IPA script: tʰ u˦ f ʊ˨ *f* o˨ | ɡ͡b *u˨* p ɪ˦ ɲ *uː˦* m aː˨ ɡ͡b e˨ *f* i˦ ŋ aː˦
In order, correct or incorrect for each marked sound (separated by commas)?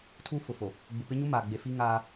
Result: correct, correct, incorrect, correct